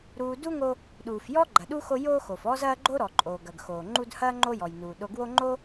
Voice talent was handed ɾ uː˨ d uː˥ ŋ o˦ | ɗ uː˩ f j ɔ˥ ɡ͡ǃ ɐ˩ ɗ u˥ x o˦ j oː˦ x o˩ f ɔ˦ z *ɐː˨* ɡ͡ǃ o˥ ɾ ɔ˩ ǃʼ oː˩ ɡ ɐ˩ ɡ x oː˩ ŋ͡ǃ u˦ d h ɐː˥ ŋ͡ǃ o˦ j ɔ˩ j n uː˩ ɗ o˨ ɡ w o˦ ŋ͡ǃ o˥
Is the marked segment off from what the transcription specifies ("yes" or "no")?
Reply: yes